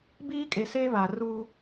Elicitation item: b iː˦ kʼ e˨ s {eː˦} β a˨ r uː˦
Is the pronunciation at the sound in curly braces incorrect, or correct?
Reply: correct